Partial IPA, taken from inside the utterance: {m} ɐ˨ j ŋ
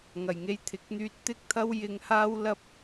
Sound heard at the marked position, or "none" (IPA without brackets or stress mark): ŋ